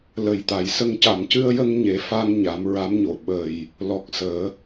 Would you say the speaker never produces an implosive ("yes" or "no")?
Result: no